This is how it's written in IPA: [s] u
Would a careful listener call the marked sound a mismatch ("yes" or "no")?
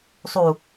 yes